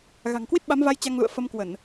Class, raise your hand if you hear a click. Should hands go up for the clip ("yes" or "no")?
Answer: no